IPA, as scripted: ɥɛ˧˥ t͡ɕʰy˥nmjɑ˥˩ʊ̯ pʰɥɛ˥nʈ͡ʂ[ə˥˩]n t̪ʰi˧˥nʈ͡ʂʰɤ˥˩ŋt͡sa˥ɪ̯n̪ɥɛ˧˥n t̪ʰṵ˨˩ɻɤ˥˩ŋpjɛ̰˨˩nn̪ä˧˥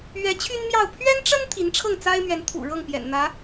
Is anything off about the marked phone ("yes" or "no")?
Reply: yes